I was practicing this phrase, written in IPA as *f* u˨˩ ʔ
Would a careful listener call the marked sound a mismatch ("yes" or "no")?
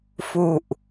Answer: no